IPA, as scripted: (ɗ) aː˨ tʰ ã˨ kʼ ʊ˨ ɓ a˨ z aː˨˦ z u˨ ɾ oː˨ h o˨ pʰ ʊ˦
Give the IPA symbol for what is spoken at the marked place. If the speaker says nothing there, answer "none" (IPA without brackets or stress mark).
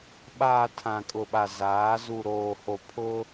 ɓ